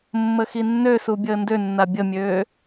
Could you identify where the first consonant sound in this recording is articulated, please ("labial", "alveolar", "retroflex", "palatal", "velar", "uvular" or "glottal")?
labial